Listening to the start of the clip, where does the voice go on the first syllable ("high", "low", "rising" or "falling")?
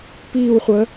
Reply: falling